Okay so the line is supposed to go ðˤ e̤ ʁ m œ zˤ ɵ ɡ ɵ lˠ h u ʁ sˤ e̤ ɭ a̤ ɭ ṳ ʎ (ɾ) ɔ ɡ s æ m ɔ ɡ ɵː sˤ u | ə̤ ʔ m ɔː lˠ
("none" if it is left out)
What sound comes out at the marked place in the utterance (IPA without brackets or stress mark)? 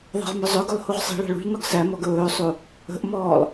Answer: n